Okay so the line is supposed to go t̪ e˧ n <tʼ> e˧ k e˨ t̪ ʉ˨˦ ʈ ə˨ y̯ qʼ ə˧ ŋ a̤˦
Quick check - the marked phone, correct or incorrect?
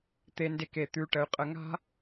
incorrect